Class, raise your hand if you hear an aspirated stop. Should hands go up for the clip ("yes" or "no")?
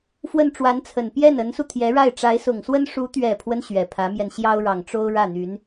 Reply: yes